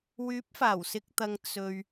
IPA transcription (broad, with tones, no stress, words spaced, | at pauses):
wyː˨˥p̚faː˨˩w sɪ˨k̚t̪ɐ˨ŋ t͡sɵ˨ɥ